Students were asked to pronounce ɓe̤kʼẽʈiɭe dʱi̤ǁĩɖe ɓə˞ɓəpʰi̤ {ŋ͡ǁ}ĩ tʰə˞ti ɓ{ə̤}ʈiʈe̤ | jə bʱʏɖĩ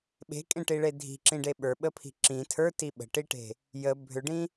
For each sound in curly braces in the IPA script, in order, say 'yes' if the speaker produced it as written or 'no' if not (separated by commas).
no, yes